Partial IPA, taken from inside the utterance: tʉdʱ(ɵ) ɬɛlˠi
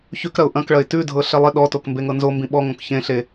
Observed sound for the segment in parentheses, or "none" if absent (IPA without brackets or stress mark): ɤ